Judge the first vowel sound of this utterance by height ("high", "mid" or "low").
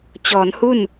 mid